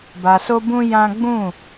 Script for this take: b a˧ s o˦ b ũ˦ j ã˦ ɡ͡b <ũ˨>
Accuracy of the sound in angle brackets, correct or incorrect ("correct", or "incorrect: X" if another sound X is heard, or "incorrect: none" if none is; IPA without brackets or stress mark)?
incorrect: ũ˦˨